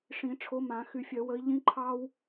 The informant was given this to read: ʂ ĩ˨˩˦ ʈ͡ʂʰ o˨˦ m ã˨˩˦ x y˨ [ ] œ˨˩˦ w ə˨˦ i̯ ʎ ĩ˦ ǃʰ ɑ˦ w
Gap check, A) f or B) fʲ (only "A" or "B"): B